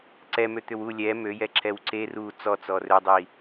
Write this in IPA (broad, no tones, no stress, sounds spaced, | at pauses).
ǀ ɛ m ø t̪ ʏ w u lʲ ɛ m ø j ɛ ǁ ɛ w ǀ e r u t͡s ɔ t͡s ɔ r ø dˤ i